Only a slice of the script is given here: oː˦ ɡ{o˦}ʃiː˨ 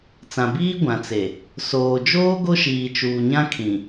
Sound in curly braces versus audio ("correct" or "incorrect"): correct